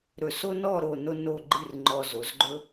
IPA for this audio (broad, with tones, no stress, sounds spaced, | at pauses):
ɾ ɵ˧˩ s o˥ n ɔ˥˧ ɾ o˥˧ n o˥ n o˥˧ ɡ͡ǃ ɨ˥˧ r ŋ͡ǃ ɔ˧ z o˩˧ z ɡ͡ǃ ɵ˥